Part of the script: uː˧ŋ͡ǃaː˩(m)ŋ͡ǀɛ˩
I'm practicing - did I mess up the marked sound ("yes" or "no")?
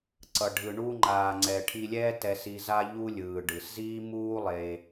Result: yes